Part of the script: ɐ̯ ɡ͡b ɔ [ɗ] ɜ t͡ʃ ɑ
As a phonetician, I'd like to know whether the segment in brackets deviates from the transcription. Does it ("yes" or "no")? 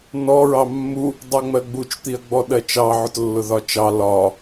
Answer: no